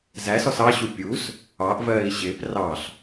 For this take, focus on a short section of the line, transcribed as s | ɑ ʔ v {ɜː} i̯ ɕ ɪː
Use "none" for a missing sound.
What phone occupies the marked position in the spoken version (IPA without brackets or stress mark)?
ɜː